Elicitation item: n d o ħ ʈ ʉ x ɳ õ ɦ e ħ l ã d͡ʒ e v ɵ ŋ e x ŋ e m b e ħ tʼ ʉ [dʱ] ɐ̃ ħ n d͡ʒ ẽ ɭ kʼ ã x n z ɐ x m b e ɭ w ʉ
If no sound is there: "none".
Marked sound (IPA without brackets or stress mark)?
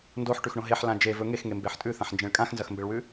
θ